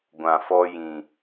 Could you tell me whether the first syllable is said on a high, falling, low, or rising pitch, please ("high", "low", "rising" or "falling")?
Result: low